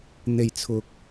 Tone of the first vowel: low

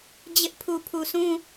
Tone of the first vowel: high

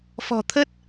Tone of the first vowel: low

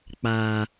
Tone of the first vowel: low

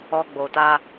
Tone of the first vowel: high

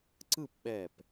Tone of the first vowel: falling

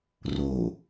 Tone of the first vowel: low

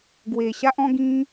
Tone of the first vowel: low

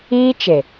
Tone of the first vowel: high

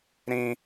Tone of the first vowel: high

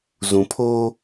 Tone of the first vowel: low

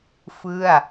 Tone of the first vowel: falling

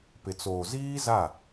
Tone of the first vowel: low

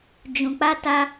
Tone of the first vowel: low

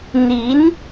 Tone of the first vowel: rising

